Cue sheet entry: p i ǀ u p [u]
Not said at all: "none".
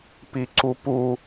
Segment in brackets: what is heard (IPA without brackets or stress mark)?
u